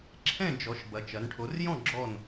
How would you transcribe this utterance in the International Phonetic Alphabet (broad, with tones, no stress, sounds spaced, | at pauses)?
ǁʰ ɛ̃˥˨ d͡ʒ ɔ˩˧ ʃ b ɐ˩˧ t͡ʃ ɐ˩˧ n ʈʰ o˩˧ r j ɔ̃˥˨ ɡ͡ǁ ɔ˥˨ n